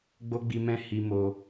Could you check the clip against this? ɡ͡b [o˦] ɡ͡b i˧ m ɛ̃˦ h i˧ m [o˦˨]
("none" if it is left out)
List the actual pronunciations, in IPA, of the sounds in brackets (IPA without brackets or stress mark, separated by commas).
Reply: o˦, o˧